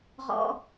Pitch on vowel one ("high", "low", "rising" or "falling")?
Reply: low